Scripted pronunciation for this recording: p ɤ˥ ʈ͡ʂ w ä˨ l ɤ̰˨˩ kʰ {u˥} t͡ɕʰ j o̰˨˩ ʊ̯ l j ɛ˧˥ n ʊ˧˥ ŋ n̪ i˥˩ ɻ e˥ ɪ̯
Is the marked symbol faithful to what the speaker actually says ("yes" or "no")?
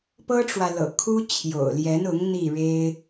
yes